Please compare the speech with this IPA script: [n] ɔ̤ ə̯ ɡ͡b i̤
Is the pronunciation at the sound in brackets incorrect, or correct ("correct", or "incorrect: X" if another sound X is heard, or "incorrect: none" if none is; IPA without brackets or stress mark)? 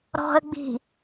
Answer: incorrect: ɾ